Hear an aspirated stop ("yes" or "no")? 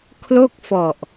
yes